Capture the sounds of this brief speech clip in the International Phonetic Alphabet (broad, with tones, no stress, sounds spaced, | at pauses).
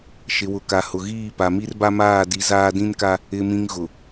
ʃ ɪ˨ w ʊ˨ k a˨ h ʊ˨ ɣ iː˦˨ p a˨ m i˦ r b a˦ m aː˦˨ d i˨˦ z aː˦ d ĩ˦ n k a˦ | ɪ˨ m ĩ˨ ŋ ɣ ʊ˨